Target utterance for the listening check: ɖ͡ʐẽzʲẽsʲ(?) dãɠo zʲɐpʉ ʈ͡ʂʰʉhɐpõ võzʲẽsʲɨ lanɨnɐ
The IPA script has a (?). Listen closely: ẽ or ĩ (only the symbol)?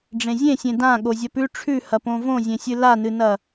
ẽ